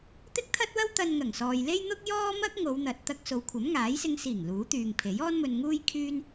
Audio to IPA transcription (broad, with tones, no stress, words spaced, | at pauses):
t̪ɪ˥k̚t̪ʰɐ˥t̚wɐ˥w t̪ɐ˧nŋɐ˨˩ŋsɔː˨jle˥j n̪ʊ˥k̚jɔː˥mɐ˥k̚ ŋo˨˧wn̪ɐ˨t̚ t̪ɐ˧k̚so˨wkʷʰɐ˨˥m ŋaː˨˥jsɪ˧ŋ siː˨˩ŋ luː˨˥t̪yː˨ŋpʰe˨˥j ɔː˥nmɵ˧nŋuː˥j kʰyː˥n